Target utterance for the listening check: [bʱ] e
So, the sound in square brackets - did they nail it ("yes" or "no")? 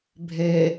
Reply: yes